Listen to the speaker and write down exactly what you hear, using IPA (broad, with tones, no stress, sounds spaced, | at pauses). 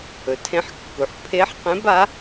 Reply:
ɵ˩ tʰ ẽ˧˥ ħ kː u˩ ħ pʰ e˧˥ ħ q ẽ˧˥ b a˧˥